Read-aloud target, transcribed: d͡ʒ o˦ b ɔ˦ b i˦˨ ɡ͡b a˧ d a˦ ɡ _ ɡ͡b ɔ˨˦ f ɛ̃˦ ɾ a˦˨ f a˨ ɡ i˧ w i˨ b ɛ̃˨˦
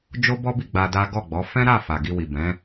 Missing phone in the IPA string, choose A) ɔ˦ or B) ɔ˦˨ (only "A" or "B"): B